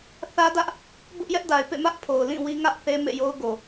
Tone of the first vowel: high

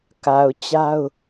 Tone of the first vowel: low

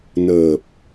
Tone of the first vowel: low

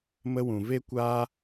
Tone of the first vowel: high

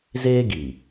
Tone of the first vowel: high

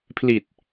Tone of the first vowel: low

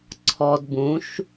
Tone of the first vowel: low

